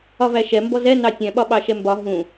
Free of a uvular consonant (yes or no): yes